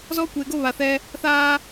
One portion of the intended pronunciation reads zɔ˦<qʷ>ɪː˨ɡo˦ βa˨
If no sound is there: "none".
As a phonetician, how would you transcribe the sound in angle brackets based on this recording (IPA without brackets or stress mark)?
kʷ